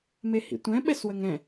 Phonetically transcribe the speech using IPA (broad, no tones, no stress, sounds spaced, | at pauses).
m e h ḭ tʷ ɛ̃ ɓ ɛ s w ə ŋ ɛ̃